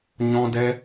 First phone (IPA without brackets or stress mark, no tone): ɲ